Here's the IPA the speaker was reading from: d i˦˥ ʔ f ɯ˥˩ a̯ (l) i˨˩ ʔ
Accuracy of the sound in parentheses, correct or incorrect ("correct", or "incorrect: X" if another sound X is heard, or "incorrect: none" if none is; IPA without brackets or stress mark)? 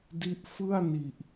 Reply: incorrect: n